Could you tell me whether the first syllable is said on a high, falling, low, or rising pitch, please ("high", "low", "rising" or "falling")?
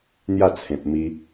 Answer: falling